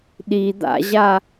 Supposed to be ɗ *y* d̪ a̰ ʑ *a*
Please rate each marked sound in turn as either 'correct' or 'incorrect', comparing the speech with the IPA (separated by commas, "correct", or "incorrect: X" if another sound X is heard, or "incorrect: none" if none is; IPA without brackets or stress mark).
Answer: incorrect: i, correct